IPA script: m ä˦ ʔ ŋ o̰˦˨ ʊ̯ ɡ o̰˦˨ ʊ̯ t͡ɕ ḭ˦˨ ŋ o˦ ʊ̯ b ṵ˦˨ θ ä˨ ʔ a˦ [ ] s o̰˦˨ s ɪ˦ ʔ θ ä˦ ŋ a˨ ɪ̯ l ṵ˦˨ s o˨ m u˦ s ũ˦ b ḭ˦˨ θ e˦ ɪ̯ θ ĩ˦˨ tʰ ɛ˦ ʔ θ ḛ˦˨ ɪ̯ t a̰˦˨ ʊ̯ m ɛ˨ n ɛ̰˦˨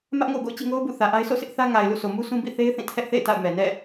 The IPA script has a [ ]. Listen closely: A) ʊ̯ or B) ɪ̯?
B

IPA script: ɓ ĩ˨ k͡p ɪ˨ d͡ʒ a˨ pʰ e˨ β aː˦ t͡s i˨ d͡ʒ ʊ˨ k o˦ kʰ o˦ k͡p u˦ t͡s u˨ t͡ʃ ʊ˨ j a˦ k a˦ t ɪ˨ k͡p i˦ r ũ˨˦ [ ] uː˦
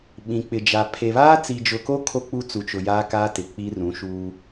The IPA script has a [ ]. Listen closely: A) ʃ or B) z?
A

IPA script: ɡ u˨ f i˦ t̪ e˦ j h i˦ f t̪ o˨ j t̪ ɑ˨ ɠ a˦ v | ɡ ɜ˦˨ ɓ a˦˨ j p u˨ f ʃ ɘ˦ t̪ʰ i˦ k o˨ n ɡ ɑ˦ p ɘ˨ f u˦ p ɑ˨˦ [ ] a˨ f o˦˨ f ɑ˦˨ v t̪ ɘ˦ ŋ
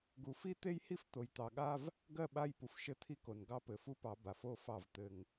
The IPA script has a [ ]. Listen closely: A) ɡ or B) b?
B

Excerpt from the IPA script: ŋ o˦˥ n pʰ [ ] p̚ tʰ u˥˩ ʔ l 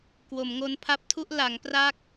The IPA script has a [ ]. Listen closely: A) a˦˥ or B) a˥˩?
A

